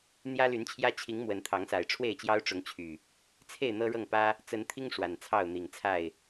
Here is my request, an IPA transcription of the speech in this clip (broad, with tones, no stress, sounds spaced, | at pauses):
n̪ j ä˦ l y˨˦ n t͡ɕʰ j ä˦ t͡ɕʰ i˨˦ ŋ m w ə˨˦ n t̪ʰ ɑ˨˦ ŋ s a˨˩ ɪ̯ ʈ͡ʂʰ w e˥˨ ɪ̯ t͡ɕ j ɑ˦ ʊ̯ ʈ͡ʂ ʊ˨˦ ŋ t͡ɕʰ y˨˩ | t͡sʰ e˥˨ ɪ̯ n̪ ɤ˦ ɻ ɤ˥˨ ŋ p ä˦ | t͡s ə˨˦ n t̪ʰ i˦ ŋ ʂ w a˨˩ n t͡sʰ ɑ˥˨ ʊ̯ n̪ i˨˩ ŋ t͡sʰ a˥˨ ɪ̯